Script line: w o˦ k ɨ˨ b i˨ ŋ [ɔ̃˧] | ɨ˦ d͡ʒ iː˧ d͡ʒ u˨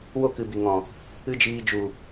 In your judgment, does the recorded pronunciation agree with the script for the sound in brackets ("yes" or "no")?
no